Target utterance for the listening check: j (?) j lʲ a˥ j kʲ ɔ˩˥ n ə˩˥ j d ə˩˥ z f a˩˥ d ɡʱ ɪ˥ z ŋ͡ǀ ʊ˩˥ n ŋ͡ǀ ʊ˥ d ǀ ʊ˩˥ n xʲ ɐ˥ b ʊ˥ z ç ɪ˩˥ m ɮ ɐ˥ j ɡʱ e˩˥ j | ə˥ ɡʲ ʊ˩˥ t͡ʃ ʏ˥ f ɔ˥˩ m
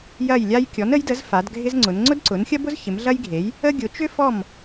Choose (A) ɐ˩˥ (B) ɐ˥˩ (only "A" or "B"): B